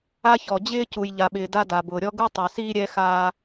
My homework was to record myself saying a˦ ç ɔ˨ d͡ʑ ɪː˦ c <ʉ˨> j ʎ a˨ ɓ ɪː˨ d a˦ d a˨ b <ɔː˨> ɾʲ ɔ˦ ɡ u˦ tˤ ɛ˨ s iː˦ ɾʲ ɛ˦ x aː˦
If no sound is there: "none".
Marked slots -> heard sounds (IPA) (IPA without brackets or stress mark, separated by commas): u˨, ʊː˨